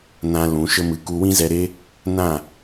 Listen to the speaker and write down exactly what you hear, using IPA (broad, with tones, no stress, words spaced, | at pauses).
nã˧ lũ˨˦ʃə˦mɨ˧ ku˧wĩ˦zɛ˧ɾe˦ | nã˦˨